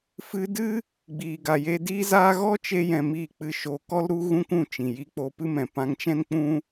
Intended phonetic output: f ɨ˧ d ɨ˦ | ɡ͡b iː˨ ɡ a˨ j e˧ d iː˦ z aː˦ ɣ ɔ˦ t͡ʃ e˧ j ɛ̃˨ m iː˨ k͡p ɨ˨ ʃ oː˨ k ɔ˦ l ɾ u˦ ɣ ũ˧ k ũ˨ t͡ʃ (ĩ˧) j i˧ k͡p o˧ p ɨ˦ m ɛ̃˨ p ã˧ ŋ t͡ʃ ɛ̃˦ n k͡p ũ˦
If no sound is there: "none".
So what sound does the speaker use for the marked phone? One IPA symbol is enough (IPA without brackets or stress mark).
ĩ˨